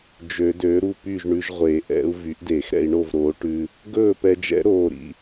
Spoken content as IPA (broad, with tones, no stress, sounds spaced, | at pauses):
d͡ʒ ø˨˩˦ d øː˩˥ ɾ u˥˩ p y˥˩ ʒ ɳ ʉ˧ ʒ ʁʷ e˨˩˦ ʔ ɛ̰˧˥ u̯ v y˩˥ ʔ d e˨˩˦ x ɾ ɛ̰˧ i̯ ɳ o˥˩ v ɾ oː˩˥ ʈ ʉ˧ | ɡ ɵː˥˩ p ɛ˧ d͡ʒ ɛ̰˧˥ ɾ oː˥˩ ɾ ḭ˧